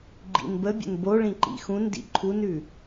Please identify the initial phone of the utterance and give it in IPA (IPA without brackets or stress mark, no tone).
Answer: ɡ͡ǃ